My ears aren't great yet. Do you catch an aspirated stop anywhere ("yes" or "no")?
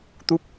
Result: no